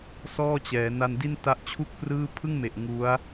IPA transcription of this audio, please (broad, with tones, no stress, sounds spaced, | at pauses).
s ɔː˥˩ t͡ɕ ɛː˩˦ n a˧ n d i˥˩ n t a˦˥ ʔ t͡ɕʰ u˥˩ k̚ p r ɯː˥˩ pʰ ɯ˥˩ ŋ m e˨˩ ʔ ŋ u˦˥ a̯